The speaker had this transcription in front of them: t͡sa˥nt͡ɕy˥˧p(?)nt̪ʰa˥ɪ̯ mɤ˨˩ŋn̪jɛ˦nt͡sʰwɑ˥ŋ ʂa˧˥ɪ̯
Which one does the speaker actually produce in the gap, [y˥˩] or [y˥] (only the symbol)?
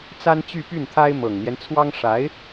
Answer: y˥˩